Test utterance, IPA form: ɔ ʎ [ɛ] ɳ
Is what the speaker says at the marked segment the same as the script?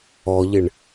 no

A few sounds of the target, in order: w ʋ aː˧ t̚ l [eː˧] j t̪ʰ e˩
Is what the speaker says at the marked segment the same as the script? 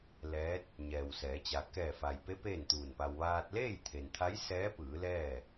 no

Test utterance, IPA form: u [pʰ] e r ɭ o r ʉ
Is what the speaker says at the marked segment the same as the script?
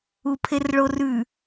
yes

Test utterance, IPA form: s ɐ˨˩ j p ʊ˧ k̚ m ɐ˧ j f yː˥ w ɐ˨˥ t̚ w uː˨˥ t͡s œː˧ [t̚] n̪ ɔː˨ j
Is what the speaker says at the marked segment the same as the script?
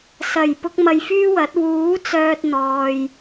yes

